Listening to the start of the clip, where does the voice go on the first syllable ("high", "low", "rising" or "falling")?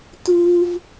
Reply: high